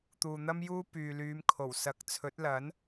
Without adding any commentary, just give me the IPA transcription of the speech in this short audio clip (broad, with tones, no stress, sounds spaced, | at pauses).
t̪ uː˨ n̪ ɐ˥ m j uː˥ p yː˨ l yː˨˧ m kʰ o˨˩ w s ɐ˨˥ k̚ t͡sʰ ɵ˨˥ t̚ l ɐ˨˥ n